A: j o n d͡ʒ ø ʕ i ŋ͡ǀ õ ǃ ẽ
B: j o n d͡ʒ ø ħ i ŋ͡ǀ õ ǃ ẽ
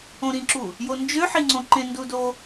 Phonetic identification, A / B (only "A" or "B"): B